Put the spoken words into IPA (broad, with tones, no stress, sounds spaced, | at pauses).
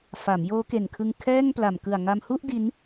f a˩˦ m j oː˦˥ k e˨˩ n kʰ ɯ˧ ŋ kʰ ɛː˥˩ ŋ p l a˨˩ m k ɯ˨˩ a̯ ŋ a˧ m h u˥˩ ʔ d i˦˥ n